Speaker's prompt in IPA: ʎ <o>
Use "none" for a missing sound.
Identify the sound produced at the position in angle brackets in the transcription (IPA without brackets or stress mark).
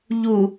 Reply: u